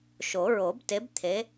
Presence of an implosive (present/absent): absent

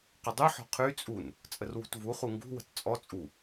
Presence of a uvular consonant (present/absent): present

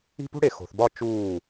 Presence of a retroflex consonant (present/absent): present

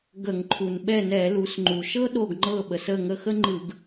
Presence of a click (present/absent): present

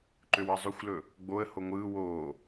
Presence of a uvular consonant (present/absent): absent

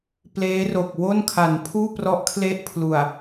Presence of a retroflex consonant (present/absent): absent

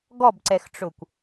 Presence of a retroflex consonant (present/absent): present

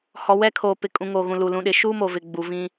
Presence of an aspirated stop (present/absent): present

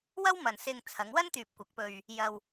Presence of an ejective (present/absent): absent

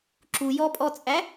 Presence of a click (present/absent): present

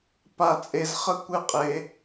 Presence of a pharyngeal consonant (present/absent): absent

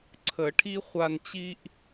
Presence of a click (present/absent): present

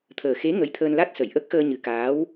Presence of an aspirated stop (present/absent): present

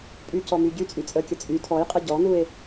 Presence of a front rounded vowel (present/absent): present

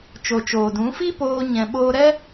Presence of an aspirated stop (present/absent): absent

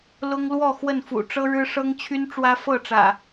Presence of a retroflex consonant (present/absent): present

